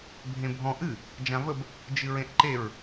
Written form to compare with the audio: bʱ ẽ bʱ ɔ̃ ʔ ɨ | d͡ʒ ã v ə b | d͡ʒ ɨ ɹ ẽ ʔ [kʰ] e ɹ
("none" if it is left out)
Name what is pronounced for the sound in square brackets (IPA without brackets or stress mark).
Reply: ǃ